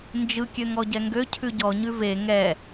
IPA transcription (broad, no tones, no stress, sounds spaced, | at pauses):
n d͡ʒ ɯ kʲ ø ŋ ɔ ɟ ɛ ŋ ɡ ø cʰ ʉ ɟ ɔ ɲ ʉ v e ŋ ɛ